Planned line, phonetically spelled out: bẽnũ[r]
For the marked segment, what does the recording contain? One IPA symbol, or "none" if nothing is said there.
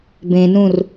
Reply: r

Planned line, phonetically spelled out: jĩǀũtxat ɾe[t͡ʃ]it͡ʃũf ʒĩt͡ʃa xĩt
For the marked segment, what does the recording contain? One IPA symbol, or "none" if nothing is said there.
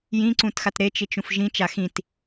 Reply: t͡ʃ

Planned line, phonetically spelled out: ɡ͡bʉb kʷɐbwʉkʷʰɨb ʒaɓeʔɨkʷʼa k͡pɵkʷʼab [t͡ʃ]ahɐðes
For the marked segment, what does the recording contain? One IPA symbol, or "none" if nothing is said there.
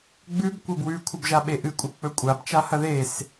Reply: t͡ʃ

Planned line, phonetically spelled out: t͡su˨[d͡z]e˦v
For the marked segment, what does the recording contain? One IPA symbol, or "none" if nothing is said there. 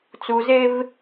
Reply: z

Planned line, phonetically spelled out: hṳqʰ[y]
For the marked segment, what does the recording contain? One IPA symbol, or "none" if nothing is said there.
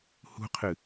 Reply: ɨ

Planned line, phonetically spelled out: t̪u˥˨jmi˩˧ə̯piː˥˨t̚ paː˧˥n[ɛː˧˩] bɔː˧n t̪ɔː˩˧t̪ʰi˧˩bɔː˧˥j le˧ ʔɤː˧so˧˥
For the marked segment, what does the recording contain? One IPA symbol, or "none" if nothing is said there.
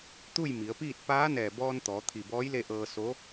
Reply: ɛː˧˩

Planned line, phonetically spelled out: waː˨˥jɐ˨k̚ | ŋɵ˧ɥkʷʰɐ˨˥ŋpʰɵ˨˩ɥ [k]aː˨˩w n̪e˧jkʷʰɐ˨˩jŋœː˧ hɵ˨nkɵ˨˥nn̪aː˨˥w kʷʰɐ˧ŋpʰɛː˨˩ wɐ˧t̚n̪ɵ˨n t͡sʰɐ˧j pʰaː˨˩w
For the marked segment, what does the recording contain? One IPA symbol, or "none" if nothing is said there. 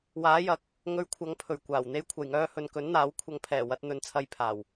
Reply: kʷ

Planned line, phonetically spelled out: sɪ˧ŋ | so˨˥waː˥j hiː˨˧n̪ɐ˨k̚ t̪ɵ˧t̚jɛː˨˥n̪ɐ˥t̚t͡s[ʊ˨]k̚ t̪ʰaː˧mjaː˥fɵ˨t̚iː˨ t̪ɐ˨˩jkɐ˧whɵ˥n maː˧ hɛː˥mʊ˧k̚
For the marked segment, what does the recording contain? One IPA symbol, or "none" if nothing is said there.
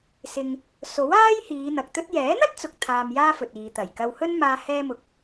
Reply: ʊ˨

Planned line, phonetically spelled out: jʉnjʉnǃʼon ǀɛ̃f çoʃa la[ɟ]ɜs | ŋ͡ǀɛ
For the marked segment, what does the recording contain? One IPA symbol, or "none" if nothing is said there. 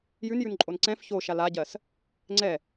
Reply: ɟ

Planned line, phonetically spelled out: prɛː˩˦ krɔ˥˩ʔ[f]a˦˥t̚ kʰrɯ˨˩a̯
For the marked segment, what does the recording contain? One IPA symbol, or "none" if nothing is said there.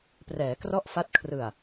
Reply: f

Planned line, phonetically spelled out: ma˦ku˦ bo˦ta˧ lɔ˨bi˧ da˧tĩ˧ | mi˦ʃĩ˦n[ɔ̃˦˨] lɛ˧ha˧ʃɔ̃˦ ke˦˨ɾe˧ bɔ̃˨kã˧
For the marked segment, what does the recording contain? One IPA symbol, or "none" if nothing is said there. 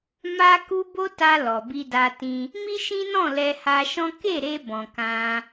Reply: ɔ̃˦˨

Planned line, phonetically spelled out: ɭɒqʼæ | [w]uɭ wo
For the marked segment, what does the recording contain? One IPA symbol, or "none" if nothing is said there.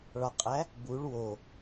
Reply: b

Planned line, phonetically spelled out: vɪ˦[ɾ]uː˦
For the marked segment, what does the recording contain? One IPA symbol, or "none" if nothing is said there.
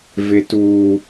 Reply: t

